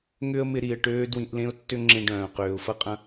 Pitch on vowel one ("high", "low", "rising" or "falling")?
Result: high